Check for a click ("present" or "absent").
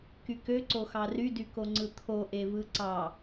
present